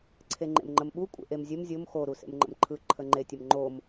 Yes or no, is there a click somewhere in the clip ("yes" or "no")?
yes